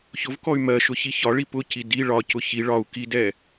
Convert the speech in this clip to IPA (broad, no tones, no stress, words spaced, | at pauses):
çʊvkɔy̯ mɜʃʊçi çɒɭi pʊci di ɭɒcʊ çi ɭɒu̯ kidɛ